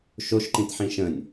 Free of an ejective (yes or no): yes